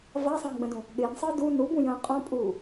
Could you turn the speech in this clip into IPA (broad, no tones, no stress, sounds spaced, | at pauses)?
v a sˤ ə̃ː ɡ͡b ə̃ d ũ | ɠ ɪː n sˤ əː d u n u b ũ j ə̃ː qʼ ɔ̃ pʼ uː